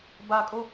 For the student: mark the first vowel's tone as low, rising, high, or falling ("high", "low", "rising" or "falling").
high